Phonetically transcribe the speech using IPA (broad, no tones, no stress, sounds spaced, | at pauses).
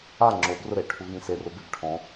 a ŋ͡ǁ o b r ʊ ɾ e ʈʰ u ɣ ĩ s e r ʊ b e b ʈʰ ɔ̃